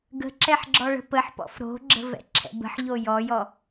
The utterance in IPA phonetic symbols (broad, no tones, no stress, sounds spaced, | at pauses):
ɡ ə̤ ǁ ɛ ħ ɡ͡ǁ ɔ ɭ ə̤ p ə ħ p ɔ̰ f ɾ o̤ ɡ͡ǁ ə̤ v ɛ̰ ǁʰ ɛ̰ b ə̤ ħ ʎ o j ɔ j ɔ